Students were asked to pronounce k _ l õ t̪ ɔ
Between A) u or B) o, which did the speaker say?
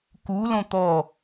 A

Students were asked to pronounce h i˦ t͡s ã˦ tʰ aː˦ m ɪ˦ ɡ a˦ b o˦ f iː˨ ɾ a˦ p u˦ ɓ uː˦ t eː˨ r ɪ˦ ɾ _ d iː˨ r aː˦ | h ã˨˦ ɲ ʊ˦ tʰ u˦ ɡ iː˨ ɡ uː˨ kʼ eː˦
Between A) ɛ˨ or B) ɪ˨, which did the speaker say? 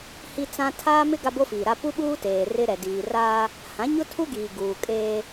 A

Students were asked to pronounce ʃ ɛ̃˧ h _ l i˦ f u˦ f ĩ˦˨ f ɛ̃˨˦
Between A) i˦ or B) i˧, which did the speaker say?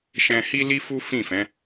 A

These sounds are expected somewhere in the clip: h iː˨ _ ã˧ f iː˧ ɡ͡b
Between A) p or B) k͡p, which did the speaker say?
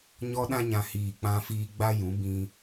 B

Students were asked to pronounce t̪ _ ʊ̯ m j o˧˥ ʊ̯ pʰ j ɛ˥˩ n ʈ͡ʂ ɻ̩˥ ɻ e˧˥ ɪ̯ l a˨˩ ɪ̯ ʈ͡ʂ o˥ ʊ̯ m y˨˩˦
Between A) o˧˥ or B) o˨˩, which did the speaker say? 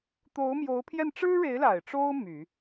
A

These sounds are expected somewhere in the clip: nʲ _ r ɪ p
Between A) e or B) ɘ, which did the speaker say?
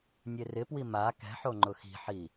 A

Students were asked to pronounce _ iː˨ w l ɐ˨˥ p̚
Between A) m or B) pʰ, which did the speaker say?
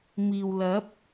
A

